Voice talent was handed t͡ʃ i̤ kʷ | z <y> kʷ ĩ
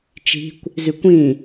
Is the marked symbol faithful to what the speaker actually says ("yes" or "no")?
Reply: yes